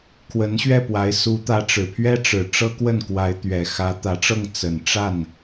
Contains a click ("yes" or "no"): no